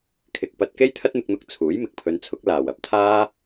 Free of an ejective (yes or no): yes